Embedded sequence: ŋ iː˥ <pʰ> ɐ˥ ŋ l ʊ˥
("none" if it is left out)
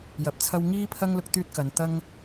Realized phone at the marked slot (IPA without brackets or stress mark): pʰ